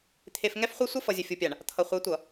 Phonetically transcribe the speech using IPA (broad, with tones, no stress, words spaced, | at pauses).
t̪ʰe˨fŋɛ˦fχʷɛ˦ sʷʌ˦fʌ˨ zʲɘ˨fʲu˨pʲa˨ɳ | t̪ʰʌ˨χʷe˨˦tʷʌ˨